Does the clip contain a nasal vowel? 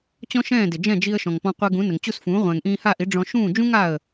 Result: yes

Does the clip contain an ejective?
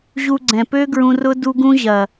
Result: no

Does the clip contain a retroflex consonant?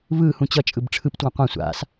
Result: yes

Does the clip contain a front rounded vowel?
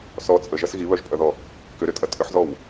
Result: yes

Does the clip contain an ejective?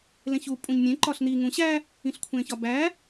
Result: yes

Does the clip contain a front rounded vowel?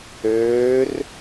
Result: yes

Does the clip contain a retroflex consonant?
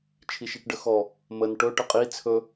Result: yes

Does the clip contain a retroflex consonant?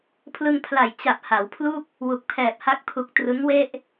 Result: no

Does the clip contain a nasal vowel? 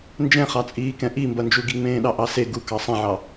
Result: yes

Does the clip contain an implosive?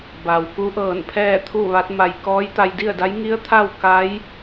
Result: no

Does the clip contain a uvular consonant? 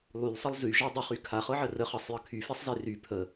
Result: yes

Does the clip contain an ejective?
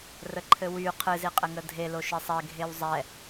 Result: yes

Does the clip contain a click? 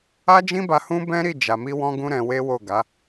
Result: no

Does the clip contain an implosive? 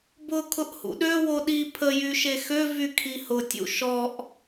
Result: yes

